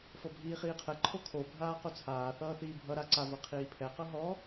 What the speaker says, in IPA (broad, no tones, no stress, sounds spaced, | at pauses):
f ɤ bʱ iː χ iː qʰ ɛ ǃʰ o kʰ o bʱ aː q o t͡sʰ aː θ ʌː θ iː bʱ ʌ ɾ a ǀ a v ɤ qʰ iː pʰ ɛ q ɤ ɦ ɔ